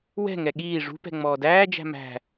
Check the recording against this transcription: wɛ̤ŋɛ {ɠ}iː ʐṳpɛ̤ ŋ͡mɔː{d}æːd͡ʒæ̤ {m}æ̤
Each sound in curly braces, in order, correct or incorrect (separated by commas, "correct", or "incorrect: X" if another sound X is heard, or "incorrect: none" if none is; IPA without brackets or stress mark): correct, correct, correct